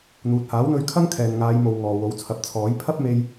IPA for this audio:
n̪ uː˨ t̚ h aː˨˥ w n̪ ɵ˧ ɥ kʰ ɐ˥ ŋ kʰ ɛː˨ n ŋ aː˨˧ j m o˨ w ŋ ɔː˨ w o˨˥ w t͡sʰ ɐ˨˥ p̚ t͡sʰ ɔː˨˥ j pʰ ɐ˥ p̚ m e˧ j

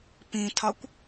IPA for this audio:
p ĩ tʰ ɒ kʷ

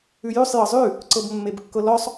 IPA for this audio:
ʉ j ʉ sˤ j ɤ zˤ ʉ | ǀ ɤ b mː e b kː ɤ l ɔ sˤ

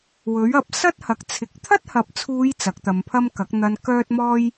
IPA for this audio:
w ɵ˨˥ ɥ ɐ˨˥ p̚ s ɐ˥ t̚ h ɐ˨ k̚ t͡sʰ ɪ˨˥ k̚ t̪ʰ ɐ˥ t̚ h ɐ˨ p̚ t͡sʰ uː˨˧ j t͡s ɐ˨˥ k̚ t̪ ɐ˨˧ m pʰ ɐ˥ m k ɐ˨˥ k̚ n̪ ɐ˧ n k œː˥ t̚ m ɔː˥ j

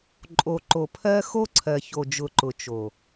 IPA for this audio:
ǃʼ o˨ ǃ o˨ pʰ ɜ˦ x o˦ ǀʰ ɜ˨ ç o˨ d͡ʒ ʊ˨ ǃ ʊ˨ t͡ʃ o˨

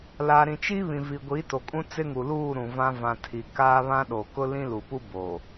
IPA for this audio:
l a˨ ɾ ĩ˨ t͡ʃ i˦ β ĩ˨ v i˨ ɡʷ i˨˦ t o˨ kʼ ũ˦ t͡s ɪ˦ ŋ u˨ l uː˦˨ ɾ ũ˨ v ã˦ v ã˨ tʰ i˨ k aː˦ β ã˦ ɗ o˨ k ʊ˦ l ĩ˦ l u˨ p u˦ b o˨

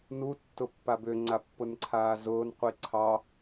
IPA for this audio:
n u tː ʊ pː a b ʏ ŋ͡ǀ a pː ʊ n ǀʰ aː z ʊː n qʷ i ǀʰ ɑ

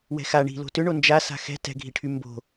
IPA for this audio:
w ɛ̤ x a ɳ i̤ l o̤ t ʏ ɳ o n d͡ʒ a s a̤ x ɛ̤ t ɛ̤ ɡʱ i ʈʰ y m b o̤

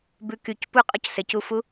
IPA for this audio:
b ʉ k y c p u qʼ ɔ c s ɘ c u f u

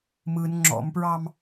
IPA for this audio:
m ɯ n ŋ͡ǁ ɔ̰ m p ɹ ɑ m

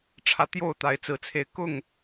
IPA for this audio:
ʈ͡ʂʰ ä˨˦ t̪ j o˥˨ ʊ̯ t̪ a˨˦ ɪ̯ t͡s ɹ̩˨˩ t͡sʰ e˨˦ ɪ̯ k ʊ˥˨ ŋ

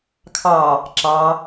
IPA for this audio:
kʰ ɑ | ǁ ɑ

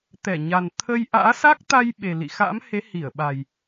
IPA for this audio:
t̪ ɛ˧˩ ɲ a˨˩ n t̪ʰ ə˧ j ʔ a̰ː˧˥ s a˦˥ k̚ t̪ a˧ j ɓ e˨˩ l ḭ˧˨ x a̰˧˥ m h e˨˦ h i˧˩ ə̯ ɓ a˨˩ j

